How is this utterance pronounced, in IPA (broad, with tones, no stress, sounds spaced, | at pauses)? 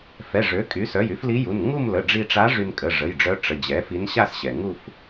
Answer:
f ɛ˩˧˩ ʐ ø˩˥ kʼ y˩˥ s œ˩˧˩ j y˩˥ f l i˧˥ j u˩˧˩ n ŋ u˥˧ m l ə˩˧˩ ɖ͡ʐ i˧ ʈ͡ʂ a˧˥ ʐ y˧ n kʼ ə˩˧˩ ʐ ə˩˧˩ j ɖ͡ʐ œ˧˥ ʈ͡ʂ ə˩˧˩ d͡ʑ ɛ˩˥ f i˧˥ n ɕ a˥˧ s ɕ ɛ˩ ŋ u˥˧ f